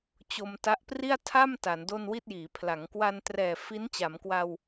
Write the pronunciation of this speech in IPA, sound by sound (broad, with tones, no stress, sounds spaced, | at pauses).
t͡ɕ o˧ m t a˦˥ ʔ p r i˥˩ a̯ tʰ a˥˩ m t a˩˦ n d o˥˩ n w i˥˩ t̚ j iː˩˦ pʰ l a˩˦ ŋ k w a˧ n t r ɛː˨˩ f i˦˥ n t͡ɕ a˩˦ m k w a˧ w